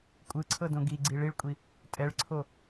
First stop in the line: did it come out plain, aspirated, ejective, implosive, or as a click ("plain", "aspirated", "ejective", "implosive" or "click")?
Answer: ejective